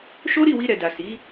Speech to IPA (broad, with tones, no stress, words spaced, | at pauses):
ʃo˦ɾi˦˨wi˧ ɾɛ˨da˨ si˨˦